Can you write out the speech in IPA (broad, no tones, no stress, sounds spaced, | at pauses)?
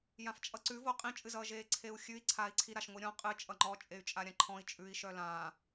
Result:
j ã f t͡ʃʼ ʌ ǀ ʉ v o qʼ ĩ t͡ʃʼ ɨ z ʌː ʒ eː ǀʰ e u̯ xʲ ʉ i̯ ǀʰ aː i̯ ǀʰ i ɾ a ʃ ŋʷ i ɾʲ ɔ̃ qʼ ɨ t͡ʃʼ ʌ ŋ͡ǃ ɔ t͡ʃʼ e y̯ t͡ʃʼ a ɾʲ ã ǃʰ ɔ̃ i̯ t͡ʃʼ ʉ i̯ ʃ œ l ã